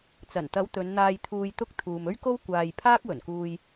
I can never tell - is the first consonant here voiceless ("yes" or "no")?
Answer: yes